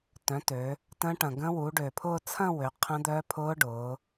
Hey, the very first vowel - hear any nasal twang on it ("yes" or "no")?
yes